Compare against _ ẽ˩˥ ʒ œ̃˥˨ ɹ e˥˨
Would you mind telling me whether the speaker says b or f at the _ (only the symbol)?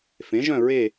f